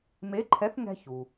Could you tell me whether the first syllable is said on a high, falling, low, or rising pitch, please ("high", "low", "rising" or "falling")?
rising